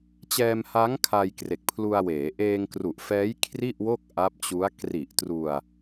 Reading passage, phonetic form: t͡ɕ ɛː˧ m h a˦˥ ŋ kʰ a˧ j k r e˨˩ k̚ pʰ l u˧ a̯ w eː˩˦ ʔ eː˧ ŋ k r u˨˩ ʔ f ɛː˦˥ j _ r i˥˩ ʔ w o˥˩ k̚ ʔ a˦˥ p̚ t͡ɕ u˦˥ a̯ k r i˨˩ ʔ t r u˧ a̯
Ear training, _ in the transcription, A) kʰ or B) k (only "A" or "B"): A